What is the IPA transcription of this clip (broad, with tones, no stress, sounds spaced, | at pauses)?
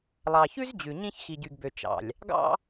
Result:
lˠ ɑ˨ ç ʉ˦ z d͡ʑ ʉ˨ ɲ ĩ˦ ç x i˨ ɟ y˨ ɡ b ø˨ t͡ʃ ɑ̰˨ lʲ | ɡ ɑ̰˦